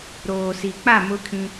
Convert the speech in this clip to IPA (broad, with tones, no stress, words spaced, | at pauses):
ɾoː˨si˨k͡pa˦˨ mʊ˦kʰĩ˦